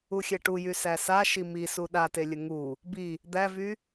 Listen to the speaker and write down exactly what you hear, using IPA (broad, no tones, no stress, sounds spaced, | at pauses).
u xʲ ɛ ʈ u j y s æ s a ʃ i m i s u ɗ a t e lʲ ə ŋ u | b i | d̪ æ v y